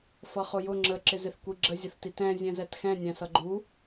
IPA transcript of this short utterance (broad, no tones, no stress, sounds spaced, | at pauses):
f ʌ χ ʊ j ʊ ŋ͡ǁ ə ǁ ɪ z ɪ θ kʷ i ɡ͡ǁ ə zʲ ə θ t i t ɛ̃ zʲ ɛ̃ z ɛ t x ɛ̃ nʲ æ̃ s ʌ ɡ͡ǃ u